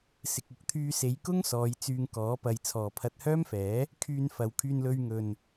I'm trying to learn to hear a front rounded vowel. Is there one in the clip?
yes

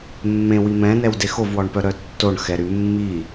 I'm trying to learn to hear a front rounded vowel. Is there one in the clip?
yes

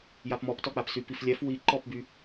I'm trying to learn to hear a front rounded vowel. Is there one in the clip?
yes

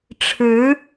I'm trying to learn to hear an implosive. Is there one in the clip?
no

